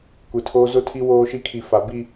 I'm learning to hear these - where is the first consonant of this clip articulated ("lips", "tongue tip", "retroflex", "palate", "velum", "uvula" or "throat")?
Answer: velum